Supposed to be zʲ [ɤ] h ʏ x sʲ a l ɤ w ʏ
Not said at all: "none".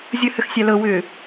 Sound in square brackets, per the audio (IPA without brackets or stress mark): ɤ